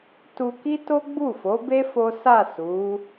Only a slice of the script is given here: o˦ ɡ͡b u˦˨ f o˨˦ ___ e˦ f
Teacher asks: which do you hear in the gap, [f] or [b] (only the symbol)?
b